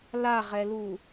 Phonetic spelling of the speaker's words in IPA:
l a ʁ ɛ l u

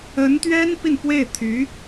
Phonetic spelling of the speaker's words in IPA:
ə˧˥ n t̪ ɥ ɛ˥ n p i˥˧ n p w e˥˩ ɪ̯ t̪ʰ y˧˥

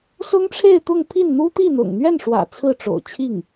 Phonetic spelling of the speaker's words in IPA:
s ʊ˥ ŋ ʈ͡ʂʰ e˥˧ ɪ̯ t̪ ʊ˥˧ ŋ pʰ i˥˩ n n̪ u˥ t̪ i˥˩ n̪ ʊ̰˨˩ ŋ n̪ ɥ ɛ˥˩ n ʂ w ä̰˨˩ t͡sʰ ɹ̩˥˩ ʈ͡ʂ o̰˨˩ ʊ̯ t͡ɕʰ i˥˩ ŋ

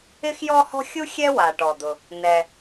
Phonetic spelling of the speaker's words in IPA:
ɪ˥ x j ɔ˥ h ɔ̤˥ xʲ u˥ xʲ ɛ˥ w a˩ ʈ ɔ˩ d̪ ʊ˩ | n ɛ˩

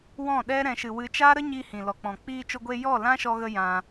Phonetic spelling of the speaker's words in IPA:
w ɔ̃˦˨ ɗ ɛ˦ ɾ ɛ̃˧ ʃ ɨ˧ w ɨ˧ t͡ʃ aː˦ ɾ ə˦ ɲ iː˧ h ĩ˨ l ɔ˨ k͡p ɔ̃˨ k͡p iː˧ t͡ʃ o˧ ɡʷ e˧ j ɔ˦˨ l ã˦ ʃ ɔ˧ ɣ ə˧ j ã˧

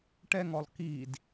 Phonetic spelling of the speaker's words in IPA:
ʈ ɛ ŋ ɔ lˠ k i d

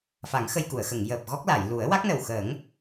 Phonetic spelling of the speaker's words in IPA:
f a˨˩˦ ŋ x ə˧ j k u˨˩˨ ə̯ x ə˨˩˨ ŋ j əː˨˩ p̚ ɣ ɔ˦˥ k̚ l a˨˩˨ j l u˨˩˦ ə̯ w a˦˥ k̚ n ə˨˩ w x ə˨˩˦ ŋ

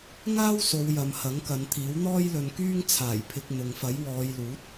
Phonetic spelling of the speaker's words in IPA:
ŋ aː˥ w s o˨˧ w j ɐ˨ m h ɐ˨˥ ŋ k ɐ˨˧ n t̪ʰ iː˨˥ w n̪ ɔː˥ j l ɵ˧ n k yː˥ ŋ t͡sʰ aː˨˩ j pʰ ɪ˨ k̚ n̪ ʊ˨ ŋ f ɐ˨˥ j w ɔː˨˧ j l uː˨˥ t̚

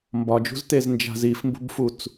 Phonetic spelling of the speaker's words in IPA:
m b ɒ d͡ʒ ṳ z t e z n d͡ʒ a̤ z i f m b ṳ b f u t͡s

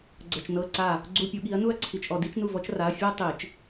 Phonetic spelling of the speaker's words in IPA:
ɡ͡ǀ ɤ˨ t͡ʃ n ɤ˧˥˧ ǀ a˦˨ | ɡ͡ǀ u˧˥˧ pʲ u˨˩˦ ɠ i˨˦ ɐ̯ n u˥ ɐ̯ ǀʰ i˨ t͡ʃ ʔ ɔ˨ d i˥ t͡ʃ n u˦˨ v ɔ˥ t͡ʃ r a˧˥˧ ɐ̯ fʲ ɤ˥ tˤ i˨˩˦ t͡ʃ

